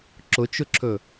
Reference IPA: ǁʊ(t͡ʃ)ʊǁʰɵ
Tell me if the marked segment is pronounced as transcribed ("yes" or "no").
yes